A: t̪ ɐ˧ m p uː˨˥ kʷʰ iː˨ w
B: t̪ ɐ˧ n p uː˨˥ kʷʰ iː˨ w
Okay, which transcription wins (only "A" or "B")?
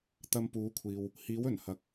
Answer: A